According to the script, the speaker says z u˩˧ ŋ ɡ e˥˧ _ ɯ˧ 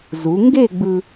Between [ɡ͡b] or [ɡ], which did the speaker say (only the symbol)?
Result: ɡ͡b